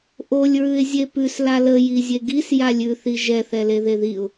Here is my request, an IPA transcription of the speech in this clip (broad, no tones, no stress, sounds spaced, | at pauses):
ʔ o lʲ ɹ ʉ ɪ̯ zʲ e p ʉ s l a l ə j i zʲ e ɡ i s j a lʲ ʉ θ i ʒ ɛ θ ɛ l e ð e ð i ʊ̯